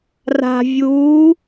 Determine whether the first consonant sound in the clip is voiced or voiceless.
voiced